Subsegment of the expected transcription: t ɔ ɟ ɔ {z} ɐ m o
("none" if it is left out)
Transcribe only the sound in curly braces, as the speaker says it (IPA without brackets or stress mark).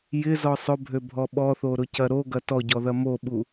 ð